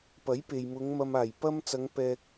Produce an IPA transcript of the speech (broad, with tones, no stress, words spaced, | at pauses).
pɐ˨˥jpe˨jmʊ˨˧ŋ mɐ˨maː˨˩jpɐ˧mt͡sɐ˨˧ŋ pɛː˧k̚